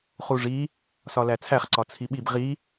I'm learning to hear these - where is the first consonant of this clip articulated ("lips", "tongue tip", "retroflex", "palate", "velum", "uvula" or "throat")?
uvula